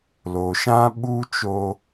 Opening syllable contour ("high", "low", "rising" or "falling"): low